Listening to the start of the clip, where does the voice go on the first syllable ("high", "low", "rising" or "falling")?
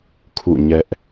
falling